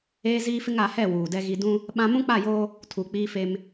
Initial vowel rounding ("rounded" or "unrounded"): unrounded